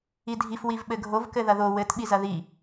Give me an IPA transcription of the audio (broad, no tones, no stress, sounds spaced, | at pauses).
i dʱ i f w i v ɓ ɘ ɡʱ o v k ɘ ð ɐ ð o w ɘ t ɓ i z ɐ ð i